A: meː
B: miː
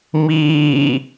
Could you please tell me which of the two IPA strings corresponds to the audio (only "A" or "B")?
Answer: B